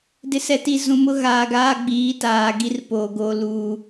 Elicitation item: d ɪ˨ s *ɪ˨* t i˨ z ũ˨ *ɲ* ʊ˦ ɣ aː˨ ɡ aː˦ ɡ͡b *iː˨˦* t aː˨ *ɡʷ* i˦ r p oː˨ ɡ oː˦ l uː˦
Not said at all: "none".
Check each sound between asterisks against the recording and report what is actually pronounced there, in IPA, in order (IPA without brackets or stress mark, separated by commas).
ɛ˨, m, iː˨˦, ɡ